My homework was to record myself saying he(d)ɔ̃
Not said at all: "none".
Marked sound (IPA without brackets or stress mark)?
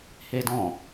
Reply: d